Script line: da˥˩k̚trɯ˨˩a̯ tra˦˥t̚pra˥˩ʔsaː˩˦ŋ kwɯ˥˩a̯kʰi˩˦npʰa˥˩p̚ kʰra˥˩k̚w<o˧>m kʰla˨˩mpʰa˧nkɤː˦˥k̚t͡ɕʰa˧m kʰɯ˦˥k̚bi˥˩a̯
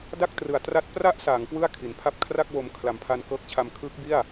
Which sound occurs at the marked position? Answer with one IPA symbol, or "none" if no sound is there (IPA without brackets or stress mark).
o˧